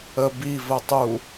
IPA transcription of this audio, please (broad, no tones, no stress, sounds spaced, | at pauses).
ə b i v ə tˤ u